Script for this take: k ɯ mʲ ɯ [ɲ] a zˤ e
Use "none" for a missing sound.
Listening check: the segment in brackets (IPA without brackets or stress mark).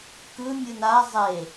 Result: n